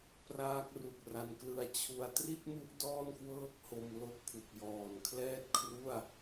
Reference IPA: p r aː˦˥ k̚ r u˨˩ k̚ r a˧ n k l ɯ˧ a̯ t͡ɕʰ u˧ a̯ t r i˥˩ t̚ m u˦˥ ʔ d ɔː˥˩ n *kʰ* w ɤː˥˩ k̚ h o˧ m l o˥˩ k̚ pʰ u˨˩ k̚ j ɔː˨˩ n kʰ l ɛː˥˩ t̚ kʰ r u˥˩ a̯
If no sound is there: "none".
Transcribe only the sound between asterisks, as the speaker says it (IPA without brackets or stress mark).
k